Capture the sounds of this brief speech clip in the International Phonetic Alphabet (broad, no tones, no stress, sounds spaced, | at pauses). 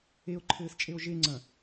e o̯ ǃʰ ɘː s t͡ʃʼ e o̯ ʒ e ŋ͡ǀ ɐ̃